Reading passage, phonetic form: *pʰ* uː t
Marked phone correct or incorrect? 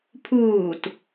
correct